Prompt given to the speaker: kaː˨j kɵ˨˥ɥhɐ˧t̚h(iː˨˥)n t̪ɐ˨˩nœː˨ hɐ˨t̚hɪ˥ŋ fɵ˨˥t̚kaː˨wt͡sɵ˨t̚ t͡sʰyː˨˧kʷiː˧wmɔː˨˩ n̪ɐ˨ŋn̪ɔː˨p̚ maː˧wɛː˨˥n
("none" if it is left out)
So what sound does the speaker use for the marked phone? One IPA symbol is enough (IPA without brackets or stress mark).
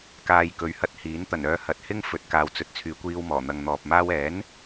iː˨˥